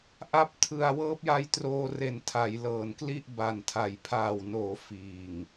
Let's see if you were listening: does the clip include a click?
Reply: no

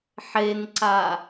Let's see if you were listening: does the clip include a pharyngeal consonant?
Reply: yes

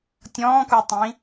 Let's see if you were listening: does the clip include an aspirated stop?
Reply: no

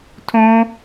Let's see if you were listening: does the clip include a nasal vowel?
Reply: yes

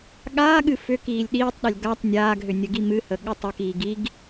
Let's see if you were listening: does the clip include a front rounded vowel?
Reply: yes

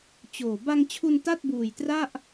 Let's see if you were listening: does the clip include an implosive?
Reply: no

